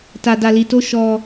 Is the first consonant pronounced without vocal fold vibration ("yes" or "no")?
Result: yes